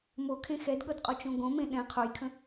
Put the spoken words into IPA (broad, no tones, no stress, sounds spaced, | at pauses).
m o kʰ ẽ x ɛ d ɠ ɤ d qʼ o t͡ʃ õ ɡ õ m ẽ ɗ ɛ̃ qʰ o j kʰ ə̃